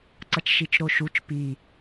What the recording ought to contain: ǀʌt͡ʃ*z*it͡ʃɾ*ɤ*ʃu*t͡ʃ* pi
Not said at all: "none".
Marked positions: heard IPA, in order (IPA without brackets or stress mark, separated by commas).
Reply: ʃ, o, t͡ʃ